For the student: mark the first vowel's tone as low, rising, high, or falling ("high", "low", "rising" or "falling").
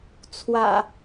low